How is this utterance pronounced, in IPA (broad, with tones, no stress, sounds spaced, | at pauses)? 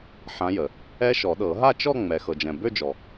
ħ ã˨˦ j ə˩ | ɛ˦˥ ʃ ɔ˨˩˦ ɗ ɤ˨˩˦ ɦ a˥˧ t͡ʃ ɔ˥˧ ŋ͡m ɛ˩ x ɤ˩ d͡ʒ ɛ̃˩ b ø˥˧ d͡ʒ ɔ˩